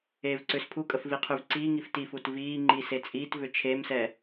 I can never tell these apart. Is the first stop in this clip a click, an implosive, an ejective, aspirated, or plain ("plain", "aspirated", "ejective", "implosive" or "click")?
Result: click